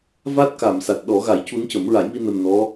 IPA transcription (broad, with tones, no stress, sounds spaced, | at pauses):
v a˦˥ t̚ k a˨˩˨ m s a˨˩ t̚ ɗ ɔ˨˩˦ ɣ a˨˩˦ j c u˧˥ n c ə˨˩˦ m ɹ a˨˩˦ j m i˧ n ə˨˩ m n ɔ˧˥